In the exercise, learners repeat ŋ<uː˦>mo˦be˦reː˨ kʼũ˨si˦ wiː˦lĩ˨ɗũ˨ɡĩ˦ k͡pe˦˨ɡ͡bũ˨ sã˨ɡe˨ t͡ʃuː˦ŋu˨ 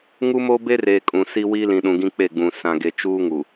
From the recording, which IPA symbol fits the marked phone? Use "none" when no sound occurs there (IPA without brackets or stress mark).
u˦